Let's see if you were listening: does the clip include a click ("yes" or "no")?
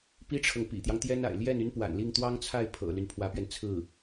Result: no